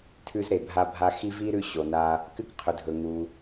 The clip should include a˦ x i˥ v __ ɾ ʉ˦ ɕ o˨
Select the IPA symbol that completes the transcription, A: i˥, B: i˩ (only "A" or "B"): A